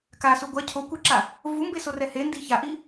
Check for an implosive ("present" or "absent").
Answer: absent